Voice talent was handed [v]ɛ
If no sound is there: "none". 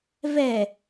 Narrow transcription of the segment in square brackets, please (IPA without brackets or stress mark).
v